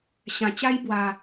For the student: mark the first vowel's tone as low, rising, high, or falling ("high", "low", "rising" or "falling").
low